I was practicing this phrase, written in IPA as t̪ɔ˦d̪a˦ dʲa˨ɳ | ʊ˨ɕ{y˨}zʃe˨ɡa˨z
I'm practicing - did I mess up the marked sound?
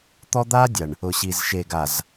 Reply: yes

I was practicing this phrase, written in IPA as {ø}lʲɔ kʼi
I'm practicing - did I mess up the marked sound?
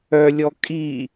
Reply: yes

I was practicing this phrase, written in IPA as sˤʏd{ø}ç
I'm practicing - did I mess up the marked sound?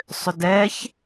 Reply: yes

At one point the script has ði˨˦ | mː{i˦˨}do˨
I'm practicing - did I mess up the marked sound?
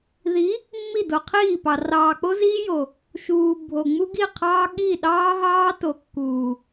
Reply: no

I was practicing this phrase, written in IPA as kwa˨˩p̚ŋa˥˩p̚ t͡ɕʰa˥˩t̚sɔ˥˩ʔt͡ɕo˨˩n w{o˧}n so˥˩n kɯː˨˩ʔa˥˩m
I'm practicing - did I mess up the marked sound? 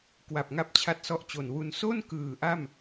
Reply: yes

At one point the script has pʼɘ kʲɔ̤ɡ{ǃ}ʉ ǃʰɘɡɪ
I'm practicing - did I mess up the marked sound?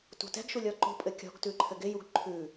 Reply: yes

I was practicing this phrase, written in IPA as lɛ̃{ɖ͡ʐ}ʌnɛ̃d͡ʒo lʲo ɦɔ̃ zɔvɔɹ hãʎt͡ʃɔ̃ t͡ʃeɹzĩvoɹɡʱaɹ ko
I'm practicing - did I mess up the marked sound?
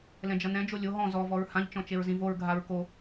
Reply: yes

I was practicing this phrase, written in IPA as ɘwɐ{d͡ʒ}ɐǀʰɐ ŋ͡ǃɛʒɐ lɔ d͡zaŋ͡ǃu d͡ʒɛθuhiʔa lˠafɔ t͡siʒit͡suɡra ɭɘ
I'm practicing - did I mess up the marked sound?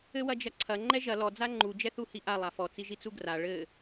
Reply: no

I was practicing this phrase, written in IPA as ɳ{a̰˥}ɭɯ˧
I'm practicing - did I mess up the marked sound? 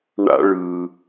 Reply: no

